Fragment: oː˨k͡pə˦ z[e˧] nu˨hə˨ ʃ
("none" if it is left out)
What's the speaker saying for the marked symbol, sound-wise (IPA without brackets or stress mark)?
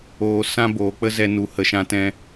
ɛ˧